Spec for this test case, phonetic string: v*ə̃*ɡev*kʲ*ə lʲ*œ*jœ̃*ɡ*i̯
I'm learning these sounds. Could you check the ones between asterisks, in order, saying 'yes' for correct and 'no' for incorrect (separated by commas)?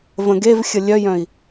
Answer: yes, no, yes, no